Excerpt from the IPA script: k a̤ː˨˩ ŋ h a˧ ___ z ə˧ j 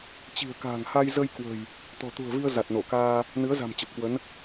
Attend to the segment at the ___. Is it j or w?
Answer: j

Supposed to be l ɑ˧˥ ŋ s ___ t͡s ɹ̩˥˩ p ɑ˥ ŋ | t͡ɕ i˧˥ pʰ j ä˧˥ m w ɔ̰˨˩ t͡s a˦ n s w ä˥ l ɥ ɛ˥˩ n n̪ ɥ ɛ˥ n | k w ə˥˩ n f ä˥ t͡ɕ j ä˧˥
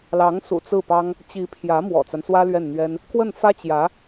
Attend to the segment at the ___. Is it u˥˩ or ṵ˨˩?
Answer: ṵ˨˩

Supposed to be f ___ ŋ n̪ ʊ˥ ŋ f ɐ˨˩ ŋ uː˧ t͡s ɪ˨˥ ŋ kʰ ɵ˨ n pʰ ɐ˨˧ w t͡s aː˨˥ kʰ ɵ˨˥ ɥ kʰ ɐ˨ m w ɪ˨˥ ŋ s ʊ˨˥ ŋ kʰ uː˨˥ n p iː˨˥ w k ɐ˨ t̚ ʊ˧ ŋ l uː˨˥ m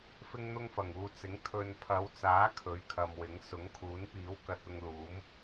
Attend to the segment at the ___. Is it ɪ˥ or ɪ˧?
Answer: ɪ˥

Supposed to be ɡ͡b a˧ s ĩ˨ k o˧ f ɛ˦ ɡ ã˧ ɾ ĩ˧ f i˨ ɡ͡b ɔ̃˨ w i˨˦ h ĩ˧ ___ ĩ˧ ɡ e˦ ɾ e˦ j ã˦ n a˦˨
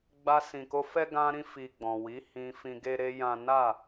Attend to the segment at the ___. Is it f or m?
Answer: f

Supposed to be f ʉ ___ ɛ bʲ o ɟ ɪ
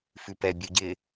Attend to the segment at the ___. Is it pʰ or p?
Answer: p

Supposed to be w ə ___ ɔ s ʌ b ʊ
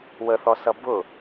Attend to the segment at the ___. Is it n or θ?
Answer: θ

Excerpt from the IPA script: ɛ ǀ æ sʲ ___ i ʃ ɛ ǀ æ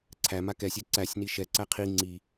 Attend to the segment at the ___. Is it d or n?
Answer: n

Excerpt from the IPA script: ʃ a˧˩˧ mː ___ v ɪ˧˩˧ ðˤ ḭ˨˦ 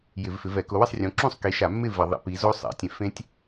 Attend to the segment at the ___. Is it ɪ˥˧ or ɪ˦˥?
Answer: ɪ˥˧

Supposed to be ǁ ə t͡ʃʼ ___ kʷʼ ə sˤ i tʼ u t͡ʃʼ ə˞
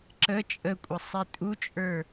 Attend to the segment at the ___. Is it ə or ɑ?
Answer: ə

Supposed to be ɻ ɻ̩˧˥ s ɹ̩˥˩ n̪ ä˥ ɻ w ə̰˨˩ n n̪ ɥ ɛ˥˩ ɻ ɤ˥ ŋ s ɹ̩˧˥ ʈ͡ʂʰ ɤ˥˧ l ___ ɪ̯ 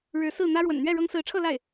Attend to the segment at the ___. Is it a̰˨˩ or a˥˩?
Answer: a˥˩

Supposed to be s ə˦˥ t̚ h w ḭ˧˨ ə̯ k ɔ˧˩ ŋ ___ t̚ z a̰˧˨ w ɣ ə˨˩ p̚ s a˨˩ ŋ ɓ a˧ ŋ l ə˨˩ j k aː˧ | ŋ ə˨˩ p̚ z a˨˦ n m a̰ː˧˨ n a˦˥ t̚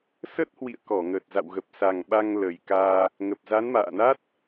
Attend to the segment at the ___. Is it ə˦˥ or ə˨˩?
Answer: ə˨˩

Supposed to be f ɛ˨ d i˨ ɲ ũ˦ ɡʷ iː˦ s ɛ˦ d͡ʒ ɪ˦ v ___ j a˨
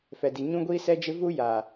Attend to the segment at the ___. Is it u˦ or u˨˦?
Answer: u˦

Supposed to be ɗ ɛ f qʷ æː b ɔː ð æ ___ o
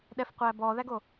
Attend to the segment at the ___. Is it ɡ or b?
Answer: ɡ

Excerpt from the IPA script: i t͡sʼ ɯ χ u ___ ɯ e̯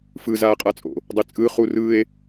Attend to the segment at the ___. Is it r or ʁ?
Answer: r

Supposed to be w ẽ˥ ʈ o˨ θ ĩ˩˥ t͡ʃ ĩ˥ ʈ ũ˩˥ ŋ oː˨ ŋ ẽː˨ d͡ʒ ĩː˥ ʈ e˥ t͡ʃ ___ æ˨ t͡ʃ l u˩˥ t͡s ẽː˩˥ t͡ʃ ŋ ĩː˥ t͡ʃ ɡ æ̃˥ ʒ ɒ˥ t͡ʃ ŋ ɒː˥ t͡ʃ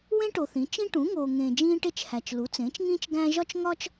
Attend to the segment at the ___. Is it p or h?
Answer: h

